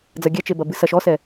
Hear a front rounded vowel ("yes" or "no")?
no